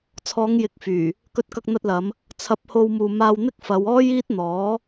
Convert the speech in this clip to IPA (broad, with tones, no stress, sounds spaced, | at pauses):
t͡sʰ ɔː˨˧ ŋ j ɪ˨ k̚ f yː˨˩ | k ɵ˧ t̚ k ɐ˧ k̚ n̪ ɐ˧ t̚ l ɐ˨˧ m | t͡sʰ ɐ˧ p̚ h o˧ w m uː˨ m aː˧ w n̪ ɪ˥ k̚ f ɐ˨˧ w ɔː˥ j iː˥ t̚ n̪ ɔː˨˥